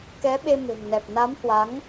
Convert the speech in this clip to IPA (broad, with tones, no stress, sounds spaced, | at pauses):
k ɛ˨˦ ɓ e˧ m e̤˨˩ ŋ n ɛ˨˩ p̚ n a˨˦ m h w a˨˦ ŋ